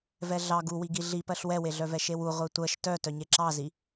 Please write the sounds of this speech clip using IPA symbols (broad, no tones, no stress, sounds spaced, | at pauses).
v ɛ ɮ ɑ ɡ u w i ɡ i ɮ i p ɜ ɬ w ɛ w e ɮ œ v ɛ ʃ e w u ʁʷ e tʷ ɜ ʃ t œ t œ ɲ e ǁ ɑ z i